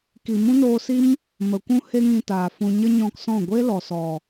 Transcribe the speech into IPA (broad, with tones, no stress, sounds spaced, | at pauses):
k i˨ m ũ˦ n oː˧ s i˦ m | m ə˨ kʷ ũ˦ h e˦ ŋ ĩ˧ t aː˨ f ũ˧ ɲ ə˦ ɲ ɔ̃˧ k s ɔ̃˦˨ ɡʷ e˦ l ɔ˨ s ɔ˨